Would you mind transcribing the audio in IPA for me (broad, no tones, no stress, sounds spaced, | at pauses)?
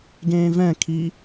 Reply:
ɡ ẽː v ɛ̃ kʰ i